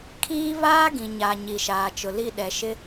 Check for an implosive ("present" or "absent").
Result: present